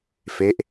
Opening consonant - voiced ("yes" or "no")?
no